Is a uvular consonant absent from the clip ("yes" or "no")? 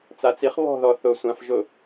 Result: no